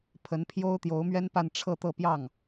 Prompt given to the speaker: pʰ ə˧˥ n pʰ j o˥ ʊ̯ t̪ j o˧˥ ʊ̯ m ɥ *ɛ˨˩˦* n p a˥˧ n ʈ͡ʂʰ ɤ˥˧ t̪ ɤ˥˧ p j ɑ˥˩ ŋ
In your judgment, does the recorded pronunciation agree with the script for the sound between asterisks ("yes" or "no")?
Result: no